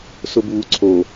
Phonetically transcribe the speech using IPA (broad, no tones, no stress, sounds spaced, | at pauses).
s ʊ b uː ǀʰ o